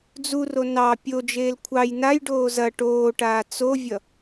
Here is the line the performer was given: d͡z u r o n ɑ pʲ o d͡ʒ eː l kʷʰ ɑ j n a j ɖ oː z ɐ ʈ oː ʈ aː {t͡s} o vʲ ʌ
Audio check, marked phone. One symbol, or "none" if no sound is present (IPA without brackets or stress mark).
t͡s